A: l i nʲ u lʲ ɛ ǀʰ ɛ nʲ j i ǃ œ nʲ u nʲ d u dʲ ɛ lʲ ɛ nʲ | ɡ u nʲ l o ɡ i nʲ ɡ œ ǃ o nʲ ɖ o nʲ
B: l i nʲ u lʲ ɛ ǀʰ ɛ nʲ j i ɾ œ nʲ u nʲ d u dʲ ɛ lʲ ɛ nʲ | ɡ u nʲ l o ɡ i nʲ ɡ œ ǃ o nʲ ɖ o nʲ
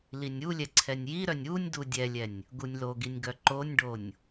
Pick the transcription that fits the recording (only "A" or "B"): B